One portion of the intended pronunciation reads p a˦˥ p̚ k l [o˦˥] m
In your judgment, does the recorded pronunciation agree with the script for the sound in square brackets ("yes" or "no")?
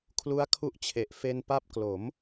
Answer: no